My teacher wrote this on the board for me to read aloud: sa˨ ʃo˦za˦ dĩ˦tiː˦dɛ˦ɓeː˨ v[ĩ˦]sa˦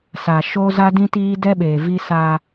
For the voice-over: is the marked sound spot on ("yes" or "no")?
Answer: no